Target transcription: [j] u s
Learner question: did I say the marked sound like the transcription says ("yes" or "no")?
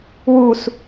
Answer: no